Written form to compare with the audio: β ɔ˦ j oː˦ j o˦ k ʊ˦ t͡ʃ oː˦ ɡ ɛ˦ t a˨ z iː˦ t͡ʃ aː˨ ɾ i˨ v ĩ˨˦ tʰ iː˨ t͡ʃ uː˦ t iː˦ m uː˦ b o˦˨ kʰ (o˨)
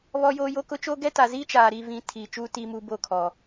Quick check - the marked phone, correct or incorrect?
incorrect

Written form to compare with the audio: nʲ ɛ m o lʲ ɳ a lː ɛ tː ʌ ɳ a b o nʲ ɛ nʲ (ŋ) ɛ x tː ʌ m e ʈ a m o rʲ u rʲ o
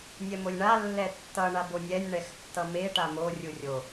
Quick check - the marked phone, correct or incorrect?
incorrect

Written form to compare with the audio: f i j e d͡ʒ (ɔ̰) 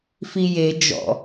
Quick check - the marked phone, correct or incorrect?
correct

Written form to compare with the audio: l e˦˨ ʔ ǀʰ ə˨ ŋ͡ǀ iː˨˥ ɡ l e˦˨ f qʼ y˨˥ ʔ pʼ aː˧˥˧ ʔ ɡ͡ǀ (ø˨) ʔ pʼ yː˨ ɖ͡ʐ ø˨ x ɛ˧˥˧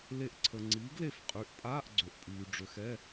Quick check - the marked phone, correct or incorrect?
correct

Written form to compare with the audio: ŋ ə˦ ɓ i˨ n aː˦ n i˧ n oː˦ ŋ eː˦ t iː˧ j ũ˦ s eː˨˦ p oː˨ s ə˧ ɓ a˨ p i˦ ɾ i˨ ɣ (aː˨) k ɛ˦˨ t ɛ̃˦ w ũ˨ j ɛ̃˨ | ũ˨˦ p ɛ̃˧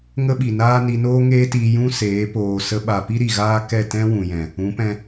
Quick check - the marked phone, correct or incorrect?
incorrect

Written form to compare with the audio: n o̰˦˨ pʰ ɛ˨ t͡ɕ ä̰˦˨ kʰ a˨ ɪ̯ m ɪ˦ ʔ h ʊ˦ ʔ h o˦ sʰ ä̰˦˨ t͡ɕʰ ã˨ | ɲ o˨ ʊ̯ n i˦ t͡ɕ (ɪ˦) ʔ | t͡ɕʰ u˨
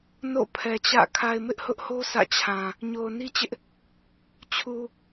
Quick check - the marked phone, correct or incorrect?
correct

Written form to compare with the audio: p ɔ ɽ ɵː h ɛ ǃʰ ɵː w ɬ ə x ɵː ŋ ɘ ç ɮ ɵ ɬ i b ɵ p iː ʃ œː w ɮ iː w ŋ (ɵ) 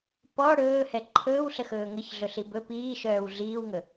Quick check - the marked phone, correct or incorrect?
correct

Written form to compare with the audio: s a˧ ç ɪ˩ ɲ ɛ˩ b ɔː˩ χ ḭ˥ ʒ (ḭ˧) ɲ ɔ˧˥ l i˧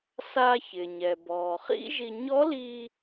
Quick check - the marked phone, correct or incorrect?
incorrect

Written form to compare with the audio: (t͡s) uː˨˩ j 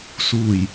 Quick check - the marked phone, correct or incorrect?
incorrect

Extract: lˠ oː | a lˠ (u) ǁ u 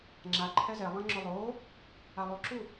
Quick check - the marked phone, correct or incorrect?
correct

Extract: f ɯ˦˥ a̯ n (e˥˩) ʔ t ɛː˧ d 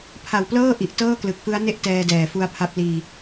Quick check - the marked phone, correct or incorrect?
correct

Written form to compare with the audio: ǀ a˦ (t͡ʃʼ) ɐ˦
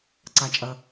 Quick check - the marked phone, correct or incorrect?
correct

